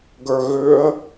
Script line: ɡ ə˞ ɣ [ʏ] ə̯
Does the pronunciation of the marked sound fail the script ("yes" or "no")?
no